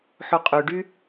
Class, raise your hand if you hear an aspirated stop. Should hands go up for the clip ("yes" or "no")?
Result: no